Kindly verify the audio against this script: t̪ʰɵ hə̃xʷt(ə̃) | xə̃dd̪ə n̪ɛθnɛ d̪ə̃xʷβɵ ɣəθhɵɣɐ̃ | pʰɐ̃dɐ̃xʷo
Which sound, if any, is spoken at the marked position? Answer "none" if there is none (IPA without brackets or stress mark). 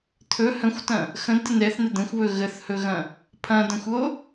ɐ̃